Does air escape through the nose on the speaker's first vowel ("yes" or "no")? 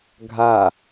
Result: no